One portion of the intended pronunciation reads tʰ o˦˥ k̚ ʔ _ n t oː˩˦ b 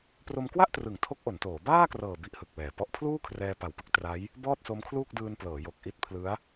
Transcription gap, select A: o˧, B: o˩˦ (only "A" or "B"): B